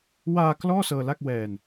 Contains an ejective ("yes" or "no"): no